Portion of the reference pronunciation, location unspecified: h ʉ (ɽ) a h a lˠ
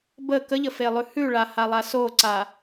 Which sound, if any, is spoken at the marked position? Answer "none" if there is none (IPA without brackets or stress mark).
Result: ɭ